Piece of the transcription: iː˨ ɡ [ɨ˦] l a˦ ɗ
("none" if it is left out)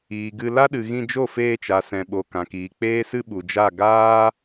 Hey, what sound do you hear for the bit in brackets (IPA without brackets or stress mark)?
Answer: ɨ˧